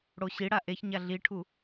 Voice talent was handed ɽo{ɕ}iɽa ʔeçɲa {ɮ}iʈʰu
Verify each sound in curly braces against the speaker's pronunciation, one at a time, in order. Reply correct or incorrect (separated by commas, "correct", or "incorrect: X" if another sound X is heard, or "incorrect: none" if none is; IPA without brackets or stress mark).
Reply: correct, correct